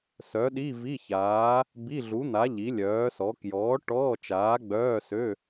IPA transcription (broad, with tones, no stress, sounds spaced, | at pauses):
s œ˨˥ ɗ i˧˥˧ v i˧˥˧ ç aː˨˥ | b i˧˥˧ ɮ u˨˥ n̪ a˨˥ ʎ i˨˥ lʲ œː˨˥ s ɔ˨˥ k j ɔː˨˥ ʈ ɔː˧˥˧ t͡ʃ aː˨˥ ɡ͡b œː˧˥˧ s ø˧˥˧